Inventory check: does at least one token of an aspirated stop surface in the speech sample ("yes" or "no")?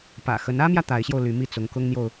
no